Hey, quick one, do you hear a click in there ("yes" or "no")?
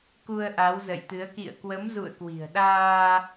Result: no